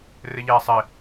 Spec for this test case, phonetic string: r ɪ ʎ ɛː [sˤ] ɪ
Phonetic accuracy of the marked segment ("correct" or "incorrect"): correct